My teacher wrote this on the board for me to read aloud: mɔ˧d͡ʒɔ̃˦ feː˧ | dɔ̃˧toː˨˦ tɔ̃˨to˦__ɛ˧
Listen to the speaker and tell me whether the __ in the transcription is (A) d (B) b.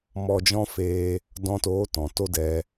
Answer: A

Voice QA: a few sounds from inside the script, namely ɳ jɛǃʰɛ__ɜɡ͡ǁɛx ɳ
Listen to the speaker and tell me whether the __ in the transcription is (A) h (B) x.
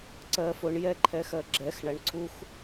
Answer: B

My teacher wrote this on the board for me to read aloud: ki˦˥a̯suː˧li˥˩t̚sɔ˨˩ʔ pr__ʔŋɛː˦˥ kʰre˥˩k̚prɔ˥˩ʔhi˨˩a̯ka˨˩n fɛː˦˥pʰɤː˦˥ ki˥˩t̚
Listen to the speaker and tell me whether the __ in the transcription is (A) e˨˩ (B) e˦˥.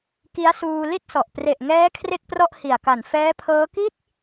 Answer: A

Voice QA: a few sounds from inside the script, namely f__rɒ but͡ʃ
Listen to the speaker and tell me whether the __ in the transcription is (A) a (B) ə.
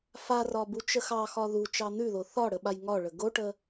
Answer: A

